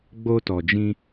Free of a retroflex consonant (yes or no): yes